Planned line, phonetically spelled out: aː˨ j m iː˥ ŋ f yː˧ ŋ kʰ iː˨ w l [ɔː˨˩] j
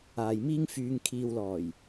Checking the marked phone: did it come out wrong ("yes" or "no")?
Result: no